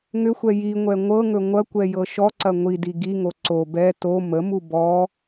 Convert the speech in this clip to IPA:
ŋʏxʷɛ jiŋʷɛ ŋʷɤŋɵ ŋʷɐkʷɛ jɤʃɔǀɐ ŋʷidi ɡiŋo ǀo bɛ to məmu bɔ

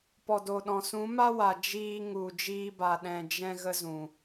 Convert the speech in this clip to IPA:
pɔ˨do˨ɗɔ̃˨ sũ˨˦ma˦ wa˨ d͡ʒiː˧ŋu˨ d͡ʒiː˧ba˨ɗɛ̃˨ d͡ʒɛ̃˦ ɣə˦zũ˨

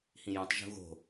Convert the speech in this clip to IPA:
hĩjũtˤ ʒṳɣo̤

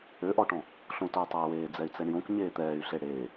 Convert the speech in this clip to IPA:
øʔɔʈɔ̃ | ɬõtœtˤœy̯weː d͡zɛy̯t͡sɛɳjõk ɲeːt̪ɛːy̯ɬe ɽeː

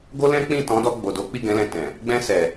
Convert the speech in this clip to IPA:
ɡo˦lɛ̃˦k͡pĩ˦˨ tɔ̃˨˦dɔ˧ɡ͡bo˨do˨˦ k͡pi˦˨ɡɛ̃˨˦lɛ̃˧ tɛ̃˨ | ɡ͡bɛ̃˧sɛ˨

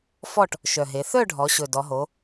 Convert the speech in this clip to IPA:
fɔ˥˨ʈ | ʃœ˨˩ɦe˩˧ θœ˥˨ɖʱɔ˩˧ ɕɵ˨˩ dɔ˩˧ɦo˩˧

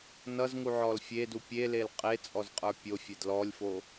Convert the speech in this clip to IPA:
nʌzŋuʕɔl fʲedu pʲelel qʼet͡sʼɔzqʼə˞ pʲofʲed lɔlʲfo

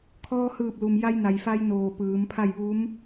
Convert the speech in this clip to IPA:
kʰɔː˧hɯː˧˩p̚lu˩m ja˧jna˩jfa˧j noː˧˩pɯː˩˧mpʰa˥˨j ʋuː˧˥m

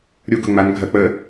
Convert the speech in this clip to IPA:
ɾʲu ɡʊ ŋ͡man ɡʱɐ k͡pə

